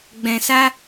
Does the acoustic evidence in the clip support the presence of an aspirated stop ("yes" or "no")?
no